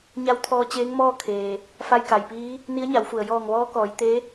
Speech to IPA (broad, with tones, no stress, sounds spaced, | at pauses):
ɲ a˧˥ w t̪ʰ ɔː˧ t͡ɕ eː˧˥ ŋ m ɔː˥˨ kʰ eː˩ | f a˧ j k a˩ j p iː˧˥ | n i˧˥ ə̯ ɲ a˩˧ w f u˩ ə̯ j ɔː˧˩ ŋ ʋ ɔː˧˥ k ɔː˩˧ j t̪ e˧˥